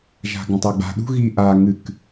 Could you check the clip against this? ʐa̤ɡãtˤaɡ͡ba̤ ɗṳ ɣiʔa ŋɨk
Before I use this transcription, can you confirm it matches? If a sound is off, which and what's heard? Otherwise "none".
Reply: ʐ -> ʒ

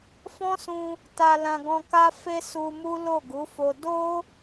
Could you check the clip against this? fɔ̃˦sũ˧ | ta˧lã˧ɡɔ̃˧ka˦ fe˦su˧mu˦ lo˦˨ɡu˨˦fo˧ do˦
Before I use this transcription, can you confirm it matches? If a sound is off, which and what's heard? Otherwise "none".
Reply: none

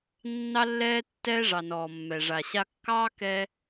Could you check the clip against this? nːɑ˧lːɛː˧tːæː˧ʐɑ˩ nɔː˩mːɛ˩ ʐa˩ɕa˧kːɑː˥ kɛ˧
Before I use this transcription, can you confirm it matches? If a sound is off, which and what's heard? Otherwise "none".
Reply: æː˧ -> ɛː˧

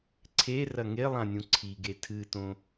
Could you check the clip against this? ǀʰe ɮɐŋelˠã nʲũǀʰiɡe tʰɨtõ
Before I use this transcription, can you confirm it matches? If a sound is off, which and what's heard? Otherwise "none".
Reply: ɮ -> r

